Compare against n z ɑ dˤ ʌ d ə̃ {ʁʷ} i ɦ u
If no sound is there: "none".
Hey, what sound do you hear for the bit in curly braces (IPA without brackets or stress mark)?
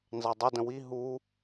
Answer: w